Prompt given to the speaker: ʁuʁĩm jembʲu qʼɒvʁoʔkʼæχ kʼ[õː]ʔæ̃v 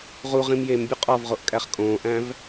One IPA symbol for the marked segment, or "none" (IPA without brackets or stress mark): õː